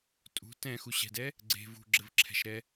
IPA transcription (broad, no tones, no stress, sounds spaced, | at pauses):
tʼ ṳ t ɛ̃ x u ɕ ɛ̤ d ɛ | ɡ͡ǀ e̤ v ṳ ɡ͡ǁ ɘ v ǁʰ ɛ̤ ʃ ɾ ɛ